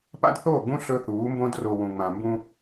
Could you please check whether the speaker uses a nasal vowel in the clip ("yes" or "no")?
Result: yes